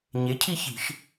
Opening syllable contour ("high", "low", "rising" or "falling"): rising